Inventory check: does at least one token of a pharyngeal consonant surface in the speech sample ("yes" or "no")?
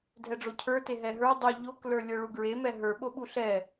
no